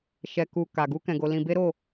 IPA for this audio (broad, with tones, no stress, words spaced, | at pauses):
ʃɛ˧ku˧ ka˧ ɡu˦kɛ̃˧ɡo˧ lĩ˧be˦ɾo˦˨